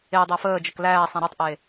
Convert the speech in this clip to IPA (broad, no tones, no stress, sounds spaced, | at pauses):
e dˤ æ f əː d͡ʒ ə k l æː sˤ ẽ ɾ u tˤ ʔ eː